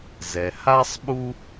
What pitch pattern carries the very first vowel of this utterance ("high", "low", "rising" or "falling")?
low